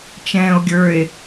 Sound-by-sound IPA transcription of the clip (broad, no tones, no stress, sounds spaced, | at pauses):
t͡ʃ ɛ̃ː o̯ ɡʲ ə˞ e̯